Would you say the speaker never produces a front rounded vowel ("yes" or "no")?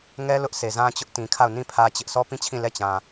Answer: yes